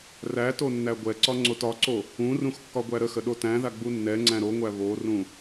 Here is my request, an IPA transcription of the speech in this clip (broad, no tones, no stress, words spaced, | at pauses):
ræ tonːæɡʷɛǀɒ ŋ͡ǀotɒǀo | ũrũx kːɒɡʷæɾəxə ɗotæ̃ða ɡ͡bunːɛŋ͡ǀæ̃ ɾoŋʷæ βorũ